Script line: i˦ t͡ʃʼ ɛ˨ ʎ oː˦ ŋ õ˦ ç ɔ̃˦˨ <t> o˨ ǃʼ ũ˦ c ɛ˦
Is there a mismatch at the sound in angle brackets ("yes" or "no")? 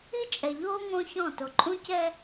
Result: no